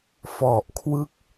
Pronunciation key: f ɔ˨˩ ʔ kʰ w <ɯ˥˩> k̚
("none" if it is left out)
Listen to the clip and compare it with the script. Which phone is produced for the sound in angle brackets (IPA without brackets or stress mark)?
ɯ˥˩